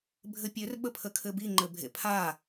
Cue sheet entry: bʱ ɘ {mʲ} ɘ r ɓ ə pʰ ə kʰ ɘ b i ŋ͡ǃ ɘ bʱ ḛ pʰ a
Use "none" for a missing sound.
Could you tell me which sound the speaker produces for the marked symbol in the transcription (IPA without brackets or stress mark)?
pʲ